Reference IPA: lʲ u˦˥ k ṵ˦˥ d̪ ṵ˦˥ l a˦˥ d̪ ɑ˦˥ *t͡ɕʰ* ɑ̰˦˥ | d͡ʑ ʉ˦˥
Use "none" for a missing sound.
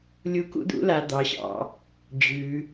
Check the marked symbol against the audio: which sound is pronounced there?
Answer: ɕ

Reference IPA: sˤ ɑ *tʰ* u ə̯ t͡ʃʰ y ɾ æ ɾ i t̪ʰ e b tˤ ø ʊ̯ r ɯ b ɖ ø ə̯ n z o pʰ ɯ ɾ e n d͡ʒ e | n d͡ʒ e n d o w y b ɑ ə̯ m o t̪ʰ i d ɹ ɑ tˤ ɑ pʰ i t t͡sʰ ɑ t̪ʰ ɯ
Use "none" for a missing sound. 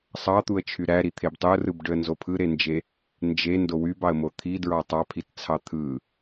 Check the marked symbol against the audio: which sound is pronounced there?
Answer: t̪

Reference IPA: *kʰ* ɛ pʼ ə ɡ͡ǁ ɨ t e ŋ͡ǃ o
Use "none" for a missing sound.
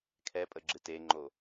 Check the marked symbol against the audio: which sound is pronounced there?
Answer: kʰ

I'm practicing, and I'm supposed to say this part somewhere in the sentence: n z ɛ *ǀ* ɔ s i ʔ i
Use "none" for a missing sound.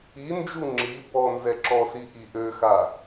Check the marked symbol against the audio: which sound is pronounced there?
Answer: ǁ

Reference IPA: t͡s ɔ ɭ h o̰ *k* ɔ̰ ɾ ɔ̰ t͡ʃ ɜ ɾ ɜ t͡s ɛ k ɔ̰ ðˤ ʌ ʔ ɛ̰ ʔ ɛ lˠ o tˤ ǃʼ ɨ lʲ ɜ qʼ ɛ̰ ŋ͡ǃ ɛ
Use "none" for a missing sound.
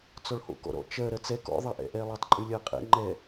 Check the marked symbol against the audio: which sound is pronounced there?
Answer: k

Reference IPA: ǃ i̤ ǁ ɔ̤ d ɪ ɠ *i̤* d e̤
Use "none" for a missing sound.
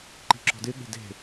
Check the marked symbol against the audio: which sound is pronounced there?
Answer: e̤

